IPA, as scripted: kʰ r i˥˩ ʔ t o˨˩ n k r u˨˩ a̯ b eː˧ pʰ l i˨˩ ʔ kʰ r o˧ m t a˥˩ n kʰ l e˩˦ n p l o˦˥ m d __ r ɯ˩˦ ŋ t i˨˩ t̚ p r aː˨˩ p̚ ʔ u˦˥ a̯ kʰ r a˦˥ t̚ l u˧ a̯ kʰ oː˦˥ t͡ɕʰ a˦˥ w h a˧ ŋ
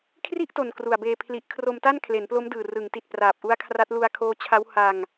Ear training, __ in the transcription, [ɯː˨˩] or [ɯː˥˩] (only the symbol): ɯː˨˩